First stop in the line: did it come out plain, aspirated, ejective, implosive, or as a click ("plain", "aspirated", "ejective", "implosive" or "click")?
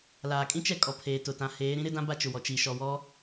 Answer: ejective